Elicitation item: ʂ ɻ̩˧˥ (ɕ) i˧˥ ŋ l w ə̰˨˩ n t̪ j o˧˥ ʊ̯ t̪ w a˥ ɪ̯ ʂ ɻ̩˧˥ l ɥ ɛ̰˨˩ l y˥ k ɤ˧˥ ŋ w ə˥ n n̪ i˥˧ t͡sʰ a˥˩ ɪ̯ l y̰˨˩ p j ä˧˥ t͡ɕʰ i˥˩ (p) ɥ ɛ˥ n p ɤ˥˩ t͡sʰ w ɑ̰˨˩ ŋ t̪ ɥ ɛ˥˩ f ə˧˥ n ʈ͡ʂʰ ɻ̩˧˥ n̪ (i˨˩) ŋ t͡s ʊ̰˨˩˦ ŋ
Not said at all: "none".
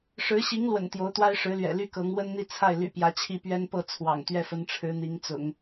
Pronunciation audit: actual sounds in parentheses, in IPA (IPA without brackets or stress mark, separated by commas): ɕ, p, i˧˥